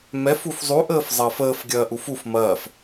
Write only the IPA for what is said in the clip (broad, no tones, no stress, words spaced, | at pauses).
mɛfuf zˤuʔəːf zˤɐːfəːfɡʲɐː ʔufuf mɐːf